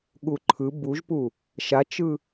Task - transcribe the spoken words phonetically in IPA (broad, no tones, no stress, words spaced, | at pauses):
ɠuǃʰɯ buʒpu | ʃat͡ʃɯ